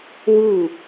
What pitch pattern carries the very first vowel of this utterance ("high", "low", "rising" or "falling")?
falling